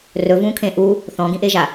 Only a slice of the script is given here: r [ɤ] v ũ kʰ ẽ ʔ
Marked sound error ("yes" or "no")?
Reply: yes